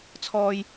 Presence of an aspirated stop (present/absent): present